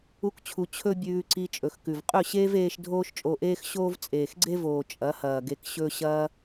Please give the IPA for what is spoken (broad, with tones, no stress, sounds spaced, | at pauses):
u˦ k t͡ɕʰ u˧ t͡ɕʰ ɵ˦ bʲ ʉː˧ ǀ i˧ t͡ʃʼ ɵ˨ x k ʉ˨ v qʼ ɵ˦˨ ɕ eː˦ v eː˧ ʃ dʱ oː˦ ʃ t͡ʃʼ o˧ ʔ eː˦ x ɕ oː˦ v t͡sʼ eː˨ x ɡ͡ǀ e˦ v oː˨ t͡ʃʼ ɐ˨˦ h ɐː˨ ɡ e˧ k ɕ ɵ˦ ɕ ɐː˧